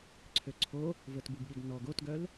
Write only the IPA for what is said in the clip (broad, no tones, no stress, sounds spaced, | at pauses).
ǀʰ ø ǀʰ o | v ə t b u ɡ ɠ i ɡ n ɔ ɡ o t ɡ œ l